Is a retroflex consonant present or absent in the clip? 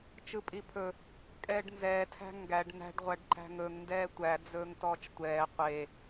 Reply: present